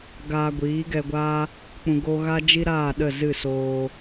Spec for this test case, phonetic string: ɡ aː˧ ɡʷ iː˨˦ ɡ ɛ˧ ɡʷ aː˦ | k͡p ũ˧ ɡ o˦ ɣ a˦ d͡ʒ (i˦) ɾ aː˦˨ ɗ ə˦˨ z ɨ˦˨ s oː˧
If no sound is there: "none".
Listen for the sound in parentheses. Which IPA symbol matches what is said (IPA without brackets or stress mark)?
i˦